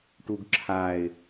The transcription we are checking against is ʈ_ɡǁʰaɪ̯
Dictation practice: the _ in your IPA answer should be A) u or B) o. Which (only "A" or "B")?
A